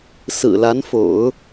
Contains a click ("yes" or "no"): no